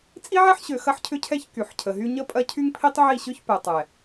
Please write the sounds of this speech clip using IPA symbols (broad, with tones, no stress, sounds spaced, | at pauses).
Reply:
t͡sʼ i˦ ʕ ɛ˦ ħ ɕ ø˨ x ɐ˦ ħ cʰ ʏ˦ cʰ ɛ˦ ç k y˨ ħ cʰ ə˨ ɦ y˦ ɲ ə˦ pʼ ɐ˦ cʰ y˦ ŋ pʰ i˦ tˤ ʕ i˦˨ ɕ ʏ˦ ç p ɛ˨ tˤ ɛ˨